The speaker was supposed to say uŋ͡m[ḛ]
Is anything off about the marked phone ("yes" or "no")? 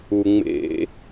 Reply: no